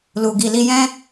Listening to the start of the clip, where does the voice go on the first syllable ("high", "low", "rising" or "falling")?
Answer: low